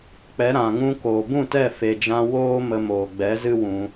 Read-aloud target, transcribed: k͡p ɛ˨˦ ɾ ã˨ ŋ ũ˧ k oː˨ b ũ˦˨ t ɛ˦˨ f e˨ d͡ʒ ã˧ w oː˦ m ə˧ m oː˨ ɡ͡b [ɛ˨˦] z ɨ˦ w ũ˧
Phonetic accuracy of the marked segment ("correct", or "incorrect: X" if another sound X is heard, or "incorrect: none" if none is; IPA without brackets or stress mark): correct